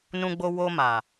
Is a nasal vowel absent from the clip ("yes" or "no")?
no